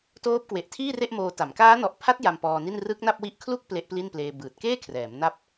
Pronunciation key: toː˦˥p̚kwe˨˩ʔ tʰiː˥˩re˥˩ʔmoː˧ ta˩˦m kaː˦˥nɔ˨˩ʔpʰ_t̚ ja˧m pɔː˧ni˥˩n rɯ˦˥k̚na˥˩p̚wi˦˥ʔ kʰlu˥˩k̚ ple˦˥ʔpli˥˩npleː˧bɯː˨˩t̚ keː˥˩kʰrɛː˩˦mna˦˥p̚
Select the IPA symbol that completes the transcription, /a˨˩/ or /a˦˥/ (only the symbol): a˦˥